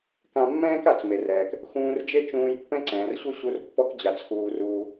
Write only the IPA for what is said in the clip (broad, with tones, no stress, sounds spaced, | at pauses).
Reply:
k ã˧ mː ɛ̃ː˥ k a˩ t͡s m e˩ r ɛː˩ k | x ũː˧ r d͡ʒ e˥ t͡ʃ ũː˧ j pː ɛ̃˥ ǀ ɛ̃ː˩ r ɕ u˥ ɕ u˧ r pː ɔ˧ k d͡ʑ a˩ t͡s x uː˩ r uː˩